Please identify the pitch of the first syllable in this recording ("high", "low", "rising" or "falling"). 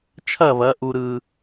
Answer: falling